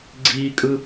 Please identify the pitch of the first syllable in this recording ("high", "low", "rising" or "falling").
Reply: high